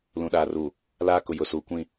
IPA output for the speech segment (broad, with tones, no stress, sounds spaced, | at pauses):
l ũ˨ ɗ aː˨ r uː˨ | l aː˦ k ʊ˨ j ʊ˨ s uː˨ kʷ ĩ˦˨